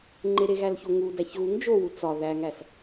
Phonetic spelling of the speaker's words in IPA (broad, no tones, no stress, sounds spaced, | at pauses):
ŋ͡ǃ e ɾ e ɣ æ l ç o ŋ u d æ ç ɣ u ŋ d͡ʒ o w u t͡s ɒ ð æ ŋ æ s